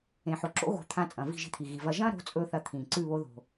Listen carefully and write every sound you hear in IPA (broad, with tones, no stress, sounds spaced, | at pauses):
ẽ˨ ħ o˨ ǁ o̰˦ ɣ o̤˦˨ t̪ʰ ã˦ t͡sʼ ɐ̃˨ v i̤˦˨ ʒ i̤˧ t̪ʰ i˨ ɣ i˨ v ɐ˧ ʒ ɐ̃˦ ɾ o̤˨˦ t͡sʼ ɵː˦ θ ɐ˧ t̪ʰ ĩː˨ ǀ ʉ˦˨ β o˧ ð o̤˨